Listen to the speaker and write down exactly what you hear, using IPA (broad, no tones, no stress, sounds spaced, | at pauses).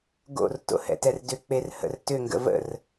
ɡ o̰ r t o̰ h ɛ̰ t ɛ r d ʏ k͡p e r h ə̰ r t ʏ ŋ ɡ ə̰ v ə̰ r